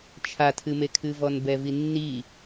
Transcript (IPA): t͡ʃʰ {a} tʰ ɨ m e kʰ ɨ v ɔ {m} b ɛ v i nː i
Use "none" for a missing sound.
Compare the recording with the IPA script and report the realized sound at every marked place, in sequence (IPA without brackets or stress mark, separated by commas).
a, n